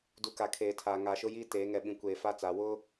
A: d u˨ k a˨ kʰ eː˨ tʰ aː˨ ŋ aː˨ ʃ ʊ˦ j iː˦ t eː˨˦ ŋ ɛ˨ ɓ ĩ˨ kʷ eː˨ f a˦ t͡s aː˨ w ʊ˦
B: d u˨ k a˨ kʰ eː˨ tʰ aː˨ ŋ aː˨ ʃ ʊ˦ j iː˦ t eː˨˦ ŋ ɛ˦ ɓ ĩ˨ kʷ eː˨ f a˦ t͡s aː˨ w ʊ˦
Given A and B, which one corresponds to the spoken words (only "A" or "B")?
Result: A